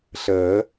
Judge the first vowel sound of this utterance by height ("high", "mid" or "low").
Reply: mid